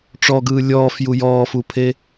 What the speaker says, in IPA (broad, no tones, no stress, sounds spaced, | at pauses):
ʈ͡ʂ ɔ ɡ ɯː lʲ ɔː f j u j ɔː f u pʰ e